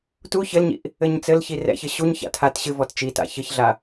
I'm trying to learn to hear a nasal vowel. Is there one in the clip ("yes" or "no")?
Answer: no